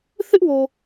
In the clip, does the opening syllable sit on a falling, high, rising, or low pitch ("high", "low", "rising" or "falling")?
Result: high